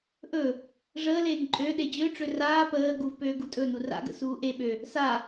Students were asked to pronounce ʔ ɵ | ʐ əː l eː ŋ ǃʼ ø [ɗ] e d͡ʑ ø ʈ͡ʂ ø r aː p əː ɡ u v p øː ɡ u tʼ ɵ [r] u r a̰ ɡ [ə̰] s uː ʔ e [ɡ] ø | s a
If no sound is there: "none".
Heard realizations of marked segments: ɗ, n, ə̰, ɓ

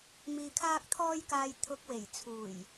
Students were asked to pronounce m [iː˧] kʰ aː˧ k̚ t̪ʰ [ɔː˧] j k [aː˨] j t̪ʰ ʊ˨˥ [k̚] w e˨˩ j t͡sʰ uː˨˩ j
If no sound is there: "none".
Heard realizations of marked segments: iː˨, ɔː˧, aː˨, k̚

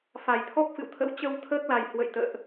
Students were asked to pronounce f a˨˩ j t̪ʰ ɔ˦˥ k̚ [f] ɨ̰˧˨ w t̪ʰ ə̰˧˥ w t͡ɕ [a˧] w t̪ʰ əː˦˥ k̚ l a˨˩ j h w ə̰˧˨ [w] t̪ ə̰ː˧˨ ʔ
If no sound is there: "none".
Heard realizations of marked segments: f, ə˧, j

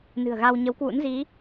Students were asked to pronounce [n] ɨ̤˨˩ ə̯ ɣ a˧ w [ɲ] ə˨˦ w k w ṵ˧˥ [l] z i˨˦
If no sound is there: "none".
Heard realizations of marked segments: n, ɲ, n

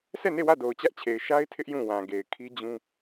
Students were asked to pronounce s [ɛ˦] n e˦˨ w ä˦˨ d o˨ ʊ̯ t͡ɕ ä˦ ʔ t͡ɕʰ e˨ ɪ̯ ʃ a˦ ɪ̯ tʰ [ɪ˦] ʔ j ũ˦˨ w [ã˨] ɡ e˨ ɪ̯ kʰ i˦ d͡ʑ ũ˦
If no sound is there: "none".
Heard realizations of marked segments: ɛ˦˨, ɪ˦, ã˨

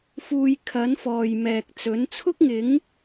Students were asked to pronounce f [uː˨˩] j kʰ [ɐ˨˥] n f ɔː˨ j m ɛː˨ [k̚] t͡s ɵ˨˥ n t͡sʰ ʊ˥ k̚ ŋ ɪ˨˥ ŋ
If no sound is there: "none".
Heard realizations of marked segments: uː˧, ɐ˨˥, k̚

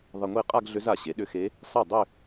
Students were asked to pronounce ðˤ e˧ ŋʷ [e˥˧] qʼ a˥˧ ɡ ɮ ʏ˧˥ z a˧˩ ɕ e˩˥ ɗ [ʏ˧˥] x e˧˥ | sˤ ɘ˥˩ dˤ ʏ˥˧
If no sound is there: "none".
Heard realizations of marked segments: e˥˧, ʏ˧˥

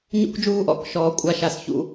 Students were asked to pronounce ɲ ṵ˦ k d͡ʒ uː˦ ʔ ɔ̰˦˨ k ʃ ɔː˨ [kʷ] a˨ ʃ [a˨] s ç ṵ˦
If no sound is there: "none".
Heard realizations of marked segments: kʷʼ, a˨

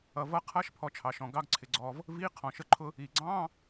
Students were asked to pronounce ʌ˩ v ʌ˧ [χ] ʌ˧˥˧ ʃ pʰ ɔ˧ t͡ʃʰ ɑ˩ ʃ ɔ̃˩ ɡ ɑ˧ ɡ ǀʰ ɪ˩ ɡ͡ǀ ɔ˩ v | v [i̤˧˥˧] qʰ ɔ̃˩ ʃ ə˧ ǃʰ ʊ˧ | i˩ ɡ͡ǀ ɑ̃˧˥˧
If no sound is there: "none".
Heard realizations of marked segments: qʰ, i˧˥˧

